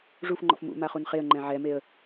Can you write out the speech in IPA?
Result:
ʐ u f ŋ͡ǃ ɔ̰ f m ṵ m a χ u n χ e ə̯ ŋ͡ǃ ɛ̃ ʕ ɛ m e ə̯

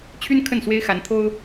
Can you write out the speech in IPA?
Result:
t͡ɕʰ y˥ n kʰ ə˥˩ n s w e˥ ɪ̯ x a˧˥ n t̪ʰ o˥ ʊ̯

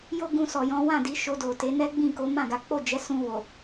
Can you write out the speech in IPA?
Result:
j o˦ ɡ ũ˧ s ɔ˨ j ɔ̃˨˦ w ã˦˨ d i˨˦ ʃ o˧ d o˨ t e˨˦ n ɛ˦ ɡ͡b ĩ˦˨ k o˨˦ m ã˦˨ ɡ a˨˦ k͡p o˦˨ d͡ʒ ɛ˨˦ s ũ˧ w o˨

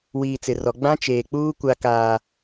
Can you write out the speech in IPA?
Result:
w iː˨ t͡s ɪ˨ r ɔ˨ ɡ͡b ã˦ t͡ʃ eː˨ k͡p uː˦ kʷ a˦ k aː˦

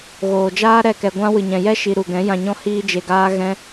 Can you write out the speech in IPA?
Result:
ɣ oː˨ d͡ʒ aː˦ ɾ ɛ˦˨ k ɛ˧ ɡʷ ã˦ w ɨ˨ ɲ ɛ̃˨ j ɛ˦ ʃ i˧ ɾ u˨ ɡ ɛ̃˨˦ j ã˧ ɲ ɔ̃˦ h iː˦ d͡ʒ e˧ ɡ aː˦ ɣ ɛ̃˦

